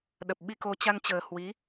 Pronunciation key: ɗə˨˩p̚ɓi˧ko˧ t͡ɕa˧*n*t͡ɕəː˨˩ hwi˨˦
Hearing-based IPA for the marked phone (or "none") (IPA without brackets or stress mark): n